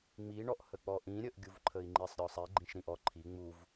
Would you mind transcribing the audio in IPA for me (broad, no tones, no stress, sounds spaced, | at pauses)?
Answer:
ŋ͡m i ɳ ɔ ʔ h ə k͡p ɔ ʔ ĩ ɾʲ ə ʔ ɡʲ u v ǃʰ ə i̯ ŋ͡ǃ i sˤ ɾʲ ɔ sˤ i ɡ͡ǃ ĩ ʃ ɾ ĩ ʔ ɔ ǃʰ i ŋ͡m u v